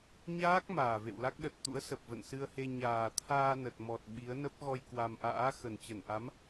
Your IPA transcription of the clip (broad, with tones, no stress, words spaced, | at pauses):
ɲaː˦˥k̚ maː˨˩vḛ˧˨wla˦˥k̚ ɗə˨˩t̚t̪ṵ˧˥ə̯ sə˨˩p̚və̰˧˨nsɨ˧ə̯he˧ ɲaː˨˩t̪ʰaː˧ nə˨˩t̚mɔ˨˩t̚ ɓi˨˦ə̯ nə˦˥p̚ɣɔ˧j kwa˧m ʔa̰ː˧˥ xə˨˩nt͡ɕə˧˩n ʔa˨˦m